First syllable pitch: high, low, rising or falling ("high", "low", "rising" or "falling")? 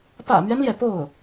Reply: low